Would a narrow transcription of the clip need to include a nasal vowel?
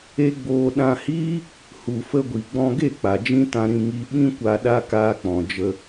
yes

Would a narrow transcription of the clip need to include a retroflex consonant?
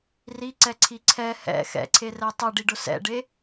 yes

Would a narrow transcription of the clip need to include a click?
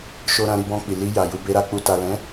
no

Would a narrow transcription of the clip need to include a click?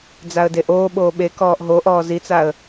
no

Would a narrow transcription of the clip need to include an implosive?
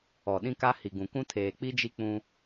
yes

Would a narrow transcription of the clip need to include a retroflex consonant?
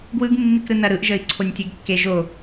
no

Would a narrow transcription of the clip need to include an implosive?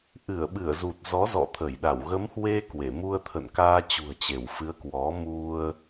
yes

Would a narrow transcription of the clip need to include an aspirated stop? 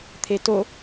yes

